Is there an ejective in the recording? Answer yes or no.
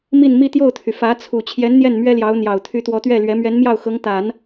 no